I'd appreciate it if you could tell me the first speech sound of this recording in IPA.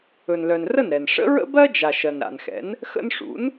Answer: ɵ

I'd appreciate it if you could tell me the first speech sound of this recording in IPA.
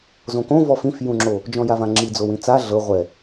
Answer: z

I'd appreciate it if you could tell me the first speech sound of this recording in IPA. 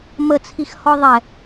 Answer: m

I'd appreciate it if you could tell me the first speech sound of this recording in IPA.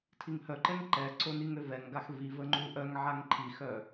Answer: tʰ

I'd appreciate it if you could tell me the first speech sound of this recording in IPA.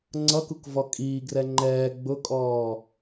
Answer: ŋ͡ǀ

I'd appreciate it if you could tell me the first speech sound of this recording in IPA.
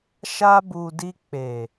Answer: ʃ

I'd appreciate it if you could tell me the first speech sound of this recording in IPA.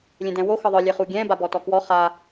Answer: lʲ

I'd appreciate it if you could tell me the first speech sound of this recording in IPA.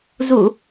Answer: z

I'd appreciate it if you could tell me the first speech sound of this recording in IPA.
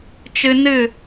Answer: t͡ʃ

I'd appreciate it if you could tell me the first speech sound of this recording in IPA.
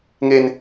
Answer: ŋ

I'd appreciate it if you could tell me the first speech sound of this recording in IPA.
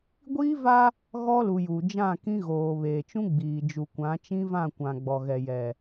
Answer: ɡʷ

